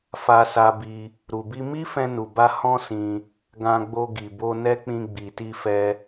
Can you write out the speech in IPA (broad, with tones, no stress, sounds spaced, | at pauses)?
f a˧ s a˧ b i˧ | ɾ u˨ b i˧ m i˦ f ɛ̃˧ n u˨ b a˧ h ɔ̃˦ s ĩ˧ | ɡ ã˧ ɡ͡b o˧ ɡ i˨ b o˧ n ɛ˦ k͡p ĩ˧ ɡ͡b i˨ t i˧ f ɛ˧